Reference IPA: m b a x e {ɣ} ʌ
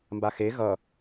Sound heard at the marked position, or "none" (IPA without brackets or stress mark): ɣ